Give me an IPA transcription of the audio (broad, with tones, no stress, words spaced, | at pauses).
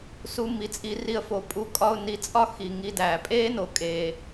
su˧ mi˨t͡sʼi˧ri˧ə̯fo˨ pʼu˧kʼɒ˦˨ʊ̯ ni˧t͡sʼɒ˦ xi˨ŋi˧dæː˨ pʼeː˦no˨ kʼeː˨